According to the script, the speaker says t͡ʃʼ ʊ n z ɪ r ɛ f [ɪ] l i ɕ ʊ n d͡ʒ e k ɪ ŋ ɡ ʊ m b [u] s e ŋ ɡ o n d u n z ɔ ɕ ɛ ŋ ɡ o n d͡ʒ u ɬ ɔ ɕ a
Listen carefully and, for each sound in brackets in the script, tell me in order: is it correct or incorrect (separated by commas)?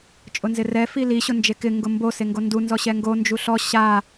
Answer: incorrect, incorrect